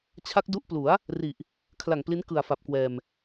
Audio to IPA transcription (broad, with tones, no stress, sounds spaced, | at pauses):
t͡ɕʰ a˦˥ k̚ d u˦˥ ʔ p l u˩˦ a̯ | r i˨˩ ʔ | kʰ l a˨˩ ŋ p l i˦˥ n k ɯ˨˩ a̯ f a˨˩ p̚ k w ɛː˨˩ m